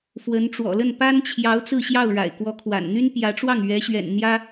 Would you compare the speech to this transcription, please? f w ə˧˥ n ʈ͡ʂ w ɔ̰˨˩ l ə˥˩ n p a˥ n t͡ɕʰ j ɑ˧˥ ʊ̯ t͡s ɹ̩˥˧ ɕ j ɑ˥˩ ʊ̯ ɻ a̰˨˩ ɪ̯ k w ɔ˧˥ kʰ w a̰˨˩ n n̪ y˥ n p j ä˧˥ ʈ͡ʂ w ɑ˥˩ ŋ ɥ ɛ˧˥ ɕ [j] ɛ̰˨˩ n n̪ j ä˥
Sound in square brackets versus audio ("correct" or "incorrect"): incorrect